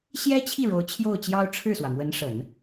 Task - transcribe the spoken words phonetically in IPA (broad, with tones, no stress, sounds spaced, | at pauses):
ɕ j ɛ˥ t͡ɕʰ i˥˩ ɻ o˧˥ ʊ̯ t͡ɕʰ j o˥˩ ʊ̯ t͡ɕ j ɑ˥ ʊ̯ ʈ͡ʂʰ ɻ̩˥˩ s w ä˩ m w ə˧˥ n ʂ ə˨˩˦ n